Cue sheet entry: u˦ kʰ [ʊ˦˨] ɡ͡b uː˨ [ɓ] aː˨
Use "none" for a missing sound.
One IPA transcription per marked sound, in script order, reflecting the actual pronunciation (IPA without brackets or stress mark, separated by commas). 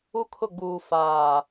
ʊ˦˨, f